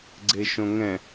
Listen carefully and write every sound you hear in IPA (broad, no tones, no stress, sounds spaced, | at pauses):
ɡ͡ǀ e ʃ õ ŋ ɛ̃